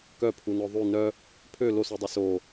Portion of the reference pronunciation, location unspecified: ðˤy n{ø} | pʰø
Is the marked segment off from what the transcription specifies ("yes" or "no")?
yes